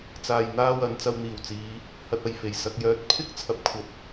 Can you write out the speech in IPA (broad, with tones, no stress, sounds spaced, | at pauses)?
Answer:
t͡s aː˧ j n̪ aː˥ w ɐ˨˧ n t͡s ɐ˧ w n̪ iː˨˩ w t͡s iː˨˧ | h ɐ˧ t̚ ɐ˨ j f e˨˩ j s ɐ˨ k̚ j œː˨ t̚ pʰ ɪ˥ k̚ t͡sʰ ɐ˧ p̚ kʷʰ ɐ˧ p̚